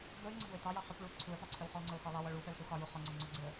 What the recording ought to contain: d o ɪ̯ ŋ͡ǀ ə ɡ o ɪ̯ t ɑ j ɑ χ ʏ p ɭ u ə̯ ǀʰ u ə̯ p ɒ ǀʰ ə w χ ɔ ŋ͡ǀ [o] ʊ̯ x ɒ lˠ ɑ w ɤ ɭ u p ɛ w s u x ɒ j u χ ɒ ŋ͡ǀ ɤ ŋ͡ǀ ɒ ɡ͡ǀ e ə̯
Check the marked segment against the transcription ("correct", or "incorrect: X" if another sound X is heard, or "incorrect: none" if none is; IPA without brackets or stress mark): incorrect: ɤ